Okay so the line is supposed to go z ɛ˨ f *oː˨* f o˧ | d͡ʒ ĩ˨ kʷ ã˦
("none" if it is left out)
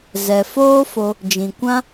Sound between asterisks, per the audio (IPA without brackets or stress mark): oː˦